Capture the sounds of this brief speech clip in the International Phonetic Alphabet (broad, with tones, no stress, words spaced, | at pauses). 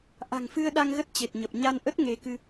ʔa̤˨˩ŋfɨ˧ə̯ɗa˧ŋ ɣə˦˥t̚ t͡ɕe˨˩t̚ɲə˨˩p̚ ɲa˧nʔə˦˥t̚ ŋe˨˦kɨ˧